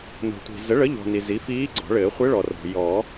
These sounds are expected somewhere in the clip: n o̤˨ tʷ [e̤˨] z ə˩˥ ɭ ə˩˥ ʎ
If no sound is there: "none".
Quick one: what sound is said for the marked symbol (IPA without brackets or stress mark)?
i̤˨